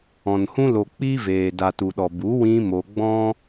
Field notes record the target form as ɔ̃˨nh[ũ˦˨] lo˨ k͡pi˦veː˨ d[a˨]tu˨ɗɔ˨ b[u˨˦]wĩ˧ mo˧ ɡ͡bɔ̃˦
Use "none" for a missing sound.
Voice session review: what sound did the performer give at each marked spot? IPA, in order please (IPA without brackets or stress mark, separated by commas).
ũ˦, a˨, u˨˦